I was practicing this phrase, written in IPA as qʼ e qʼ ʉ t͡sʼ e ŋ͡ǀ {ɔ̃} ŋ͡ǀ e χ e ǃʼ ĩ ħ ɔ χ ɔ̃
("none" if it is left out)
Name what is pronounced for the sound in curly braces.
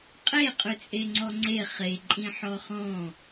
ɔ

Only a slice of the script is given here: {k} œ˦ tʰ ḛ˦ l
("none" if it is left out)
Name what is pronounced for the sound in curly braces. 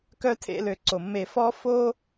k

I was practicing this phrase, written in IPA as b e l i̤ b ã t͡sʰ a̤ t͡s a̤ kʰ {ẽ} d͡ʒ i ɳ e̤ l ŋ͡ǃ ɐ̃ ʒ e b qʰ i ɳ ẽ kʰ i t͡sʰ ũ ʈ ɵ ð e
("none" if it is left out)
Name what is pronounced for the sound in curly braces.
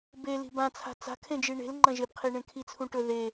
ẽ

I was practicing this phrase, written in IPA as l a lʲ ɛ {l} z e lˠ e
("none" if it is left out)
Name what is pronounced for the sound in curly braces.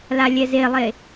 none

